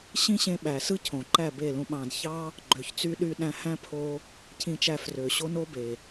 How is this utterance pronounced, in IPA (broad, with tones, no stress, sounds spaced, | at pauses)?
ɕ ĩ˦ ɕ ẽ˧ ɓ æ˨ s ɯ˦ cʰ õ˨ ǃ æ˦˨ b e˦˨ l ũ˧ ɓ ɑ̃˨ d ç ɑ˦ | ɡ͡ǃ ø˨ ç t͡s y˧ ɗ y˧ ɗ æ̃˧ h æ̃˦ pʰ o˧ | cʰ ĩ˧ t͡ʃ æ˧ f r ø˨ ɕ o˦ n o˦ b e˨